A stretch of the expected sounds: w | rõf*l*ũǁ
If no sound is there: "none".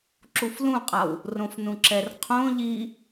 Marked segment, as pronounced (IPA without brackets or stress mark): n